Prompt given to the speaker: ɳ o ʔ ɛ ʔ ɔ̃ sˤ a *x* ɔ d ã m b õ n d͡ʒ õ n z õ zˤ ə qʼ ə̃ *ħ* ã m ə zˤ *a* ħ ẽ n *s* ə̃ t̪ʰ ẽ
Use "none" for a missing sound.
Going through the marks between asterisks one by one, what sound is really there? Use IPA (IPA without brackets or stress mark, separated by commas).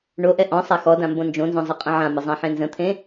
x, ʕ, ã, z